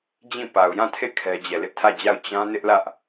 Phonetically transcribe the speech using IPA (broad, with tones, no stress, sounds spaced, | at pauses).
d͡ʑ ĩ˦˨ p a˨ ʊ̯ j ã˦˨ tʰ e˦˨ kʰ ɛ˦ d͡ʑ ɛ˦˨ l ɪ˦ ʔ tʰ ä˦˨ d͡ʑ a˦˨ ʊ̯ t͡ɕ ã˦ n ɪ˦ ʔ l ä˦ ʔ